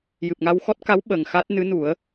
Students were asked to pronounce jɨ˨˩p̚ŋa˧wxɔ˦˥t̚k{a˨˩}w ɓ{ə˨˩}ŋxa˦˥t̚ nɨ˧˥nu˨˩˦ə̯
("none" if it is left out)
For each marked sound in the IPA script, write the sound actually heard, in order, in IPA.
a˧˥, ə˨˩

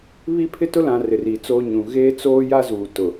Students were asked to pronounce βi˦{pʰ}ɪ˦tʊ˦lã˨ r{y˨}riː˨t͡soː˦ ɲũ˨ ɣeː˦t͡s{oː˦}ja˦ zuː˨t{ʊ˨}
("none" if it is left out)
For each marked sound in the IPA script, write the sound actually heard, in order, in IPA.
pʰ, ɪ˨, oː˦, ʊ˨

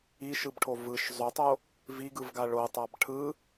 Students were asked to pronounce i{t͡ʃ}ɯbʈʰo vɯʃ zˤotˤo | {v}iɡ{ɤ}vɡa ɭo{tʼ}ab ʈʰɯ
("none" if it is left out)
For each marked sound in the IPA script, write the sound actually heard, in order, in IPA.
ʃ, v, ɯ, tˤ

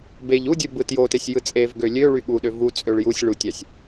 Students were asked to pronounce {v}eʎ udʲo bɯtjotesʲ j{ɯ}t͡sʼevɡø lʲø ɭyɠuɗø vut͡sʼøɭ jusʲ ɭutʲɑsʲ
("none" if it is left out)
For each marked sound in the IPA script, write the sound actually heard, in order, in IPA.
b, ɯ

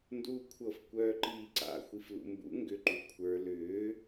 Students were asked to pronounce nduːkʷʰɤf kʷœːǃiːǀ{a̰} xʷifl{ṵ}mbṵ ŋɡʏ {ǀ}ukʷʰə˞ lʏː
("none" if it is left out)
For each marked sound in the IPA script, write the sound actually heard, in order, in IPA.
a̰, ṵ, ǃ

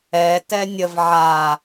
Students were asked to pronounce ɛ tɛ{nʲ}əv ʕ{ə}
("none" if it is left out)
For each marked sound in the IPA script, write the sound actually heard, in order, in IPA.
nʲ, a

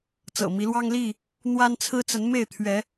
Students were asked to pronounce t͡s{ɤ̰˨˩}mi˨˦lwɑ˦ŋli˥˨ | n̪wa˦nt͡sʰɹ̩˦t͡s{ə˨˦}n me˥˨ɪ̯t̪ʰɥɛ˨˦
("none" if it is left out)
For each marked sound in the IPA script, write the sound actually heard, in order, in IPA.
ɤ̰˨˩, ə˨˦

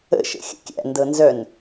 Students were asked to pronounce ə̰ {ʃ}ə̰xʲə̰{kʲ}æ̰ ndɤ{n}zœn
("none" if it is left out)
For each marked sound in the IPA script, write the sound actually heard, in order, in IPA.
ʃ, kʲ, n

